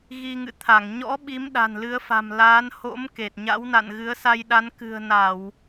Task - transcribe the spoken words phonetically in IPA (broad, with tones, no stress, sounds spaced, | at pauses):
ɣ i˧ ŋ ɨ̰˧˨ t̪ʰ a˧˩ ŋ ɲ ɔ̰˧˥ ɓ i˨˦ m ɗ a̤˨˩ n l ɨ˨˦ ə̯ f a̤˨˩ m l aː˨˦ n h o̰˧˥ m k e˨˩ t̚ ɲ a̰˧˥ w n a̰˧˨ n ɣ ɨ˨˦ ə̯ s a˧ j ɗ a˨˦ n k ɨ̤˨˩ ə̯ n a˧˩˨ w